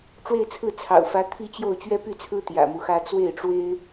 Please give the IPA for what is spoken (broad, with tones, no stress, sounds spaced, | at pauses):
ʈ͡ʂ w e˥˧ ɪ̯ t͡sʰ ɹ̩˥˩ t͡sʰ ɑ̰˨˩ ʊ̯ f ä˧˥ t̪ʰ i˥˧ t͡ɕ j o˥˩ ʊ̯ t͡ɕ ɥ ɛ˥ p y˥˩ t͡sʰ ɹ̩˥ t̪ j ä̰˨˩ m u˦ x ä˥ t͡s w e˥˩ ɪ̯ ʈ͡ʂ w e˥ ɪ̯